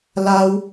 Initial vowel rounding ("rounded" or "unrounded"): unrounded